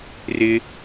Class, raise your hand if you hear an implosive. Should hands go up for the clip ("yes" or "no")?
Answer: no